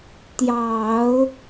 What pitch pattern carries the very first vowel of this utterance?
low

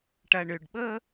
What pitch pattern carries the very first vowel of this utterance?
low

